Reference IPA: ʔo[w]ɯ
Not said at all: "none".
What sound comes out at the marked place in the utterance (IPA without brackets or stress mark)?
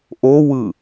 w